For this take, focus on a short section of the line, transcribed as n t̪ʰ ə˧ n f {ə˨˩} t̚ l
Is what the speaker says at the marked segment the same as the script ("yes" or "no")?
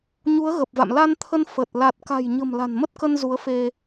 yes